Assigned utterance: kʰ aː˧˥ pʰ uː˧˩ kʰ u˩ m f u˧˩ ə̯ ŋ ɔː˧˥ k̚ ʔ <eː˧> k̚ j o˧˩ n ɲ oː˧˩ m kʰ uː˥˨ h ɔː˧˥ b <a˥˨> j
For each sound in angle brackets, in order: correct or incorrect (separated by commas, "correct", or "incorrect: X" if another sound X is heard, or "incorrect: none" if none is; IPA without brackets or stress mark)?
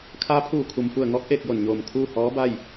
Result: correct, correct